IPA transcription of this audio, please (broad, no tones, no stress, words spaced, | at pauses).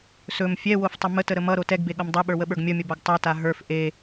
sɵm fʲɛwoftˤə mətəɾə mʌɾo tɛɡbeɠʌm dˤeɓə˞wəɓə˞ɡ mʲʌmʲʌbaɡ tˤɵta ɦə˞f ʔe